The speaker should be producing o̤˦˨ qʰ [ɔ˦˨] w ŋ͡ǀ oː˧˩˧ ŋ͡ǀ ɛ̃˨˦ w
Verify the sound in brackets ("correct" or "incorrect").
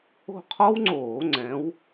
incorrect